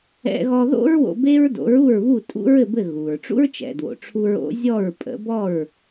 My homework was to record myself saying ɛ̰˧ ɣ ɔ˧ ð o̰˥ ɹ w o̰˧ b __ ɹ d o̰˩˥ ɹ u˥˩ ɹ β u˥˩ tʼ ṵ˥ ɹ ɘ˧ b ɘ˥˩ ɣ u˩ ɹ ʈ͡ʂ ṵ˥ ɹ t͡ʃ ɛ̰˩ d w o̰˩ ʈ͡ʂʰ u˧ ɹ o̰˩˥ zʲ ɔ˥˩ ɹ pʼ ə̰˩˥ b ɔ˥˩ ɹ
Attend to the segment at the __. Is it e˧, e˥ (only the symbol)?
e˥